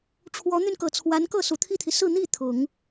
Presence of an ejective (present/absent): absent